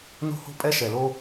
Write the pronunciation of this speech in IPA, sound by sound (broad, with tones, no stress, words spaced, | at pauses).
no̤˥ho̤˥pʼɛ˥ ʃɛ˩lo˥